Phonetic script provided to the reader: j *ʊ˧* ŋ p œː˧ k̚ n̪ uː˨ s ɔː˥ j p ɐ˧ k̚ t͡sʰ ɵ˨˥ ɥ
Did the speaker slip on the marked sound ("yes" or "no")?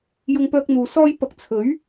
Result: no